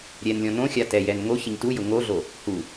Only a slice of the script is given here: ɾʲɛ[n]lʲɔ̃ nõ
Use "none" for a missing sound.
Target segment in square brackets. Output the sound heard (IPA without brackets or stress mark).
n